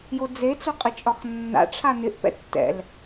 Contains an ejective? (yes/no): yes